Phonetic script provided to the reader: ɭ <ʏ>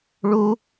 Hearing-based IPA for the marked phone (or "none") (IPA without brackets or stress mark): u